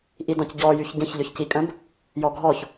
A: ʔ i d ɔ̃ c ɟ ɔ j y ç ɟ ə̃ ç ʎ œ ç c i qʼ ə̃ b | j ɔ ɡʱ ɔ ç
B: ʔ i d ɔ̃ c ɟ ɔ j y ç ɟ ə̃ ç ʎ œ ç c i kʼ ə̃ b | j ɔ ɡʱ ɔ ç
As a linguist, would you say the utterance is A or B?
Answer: B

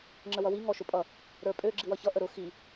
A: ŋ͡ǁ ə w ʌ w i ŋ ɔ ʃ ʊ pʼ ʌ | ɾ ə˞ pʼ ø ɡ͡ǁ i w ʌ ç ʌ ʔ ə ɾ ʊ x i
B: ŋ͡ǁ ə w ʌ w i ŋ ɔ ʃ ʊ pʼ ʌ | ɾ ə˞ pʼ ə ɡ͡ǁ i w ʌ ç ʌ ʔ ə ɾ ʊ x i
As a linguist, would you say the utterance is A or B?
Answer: A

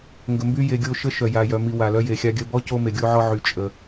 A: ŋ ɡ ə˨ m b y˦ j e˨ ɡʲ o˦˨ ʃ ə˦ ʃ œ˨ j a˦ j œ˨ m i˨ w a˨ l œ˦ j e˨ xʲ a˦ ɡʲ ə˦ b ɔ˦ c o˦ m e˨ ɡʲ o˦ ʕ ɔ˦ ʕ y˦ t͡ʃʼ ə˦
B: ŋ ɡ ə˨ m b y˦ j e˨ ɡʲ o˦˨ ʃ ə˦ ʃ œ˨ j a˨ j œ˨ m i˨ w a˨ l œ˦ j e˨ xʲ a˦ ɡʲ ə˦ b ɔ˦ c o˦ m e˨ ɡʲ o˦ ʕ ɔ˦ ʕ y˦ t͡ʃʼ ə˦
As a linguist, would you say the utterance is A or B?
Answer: B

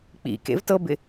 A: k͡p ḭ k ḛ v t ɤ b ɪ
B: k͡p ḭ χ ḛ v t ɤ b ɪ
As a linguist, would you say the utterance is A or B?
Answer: A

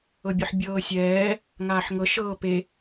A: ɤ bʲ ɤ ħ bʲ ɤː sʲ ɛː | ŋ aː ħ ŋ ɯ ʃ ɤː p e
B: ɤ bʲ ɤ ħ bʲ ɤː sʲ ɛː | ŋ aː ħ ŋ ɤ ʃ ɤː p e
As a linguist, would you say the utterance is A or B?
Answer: B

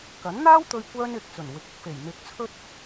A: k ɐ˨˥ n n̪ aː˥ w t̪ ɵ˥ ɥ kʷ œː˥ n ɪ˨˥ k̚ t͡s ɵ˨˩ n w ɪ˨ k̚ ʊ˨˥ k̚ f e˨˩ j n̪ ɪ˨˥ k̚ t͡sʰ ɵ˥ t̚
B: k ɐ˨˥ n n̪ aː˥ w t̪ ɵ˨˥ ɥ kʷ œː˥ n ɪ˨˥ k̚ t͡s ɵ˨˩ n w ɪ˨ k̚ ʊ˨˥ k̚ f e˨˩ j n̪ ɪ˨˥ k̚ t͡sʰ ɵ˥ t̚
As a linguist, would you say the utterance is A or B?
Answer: A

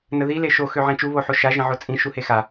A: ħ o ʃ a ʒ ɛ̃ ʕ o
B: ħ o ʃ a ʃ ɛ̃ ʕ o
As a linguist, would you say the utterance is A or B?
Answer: A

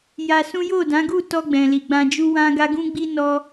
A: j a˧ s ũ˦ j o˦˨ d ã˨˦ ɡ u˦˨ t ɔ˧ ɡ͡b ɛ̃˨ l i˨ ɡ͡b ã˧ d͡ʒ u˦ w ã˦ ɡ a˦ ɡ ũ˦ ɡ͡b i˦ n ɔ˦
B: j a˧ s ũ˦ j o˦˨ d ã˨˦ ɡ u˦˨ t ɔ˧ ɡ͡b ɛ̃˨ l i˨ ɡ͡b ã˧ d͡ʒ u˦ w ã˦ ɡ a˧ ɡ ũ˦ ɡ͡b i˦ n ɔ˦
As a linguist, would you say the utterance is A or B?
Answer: A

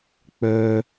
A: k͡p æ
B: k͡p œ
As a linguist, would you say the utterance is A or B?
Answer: B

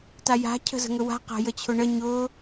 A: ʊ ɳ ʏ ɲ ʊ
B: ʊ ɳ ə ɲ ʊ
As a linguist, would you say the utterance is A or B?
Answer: B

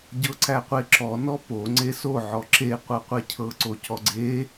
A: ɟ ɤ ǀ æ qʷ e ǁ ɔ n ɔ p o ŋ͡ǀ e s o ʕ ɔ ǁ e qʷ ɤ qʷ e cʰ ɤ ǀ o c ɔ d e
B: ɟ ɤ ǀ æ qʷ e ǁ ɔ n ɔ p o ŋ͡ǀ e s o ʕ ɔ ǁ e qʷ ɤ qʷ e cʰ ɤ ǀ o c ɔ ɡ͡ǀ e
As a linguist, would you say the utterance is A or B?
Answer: B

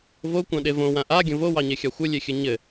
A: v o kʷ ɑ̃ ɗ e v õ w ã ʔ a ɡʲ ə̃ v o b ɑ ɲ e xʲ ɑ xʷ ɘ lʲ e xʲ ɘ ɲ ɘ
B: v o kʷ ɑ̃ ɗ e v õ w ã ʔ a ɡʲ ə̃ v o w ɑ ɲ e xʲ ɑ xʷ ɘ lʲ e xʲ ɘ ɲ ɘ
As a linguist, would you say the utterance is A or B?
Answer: B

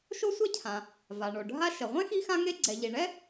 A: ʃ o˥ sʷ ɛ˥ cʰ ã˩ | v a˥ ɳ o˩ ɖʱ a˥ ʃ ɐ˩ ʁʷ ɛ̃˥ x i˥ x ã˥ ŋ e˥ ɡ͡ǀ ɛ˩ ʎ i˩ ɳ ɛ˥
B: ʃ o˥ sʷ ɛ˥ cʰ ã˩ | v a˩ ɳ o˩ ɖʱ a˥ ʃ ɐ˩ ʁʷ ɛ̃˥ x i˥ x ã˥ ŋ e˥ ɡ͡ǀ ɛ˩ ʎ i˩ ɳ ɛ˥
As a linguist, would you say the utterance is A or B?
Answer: B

